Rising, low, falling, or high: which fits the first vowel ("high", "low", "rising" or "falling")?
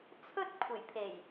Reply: high